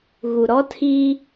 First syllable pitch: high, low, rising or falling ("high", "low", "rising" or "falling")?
low